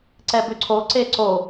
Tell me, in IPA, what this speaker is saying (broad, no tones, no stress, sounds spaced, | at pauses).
ǀ ɛ b ʏ ǀʰ o ǀ e ǀ o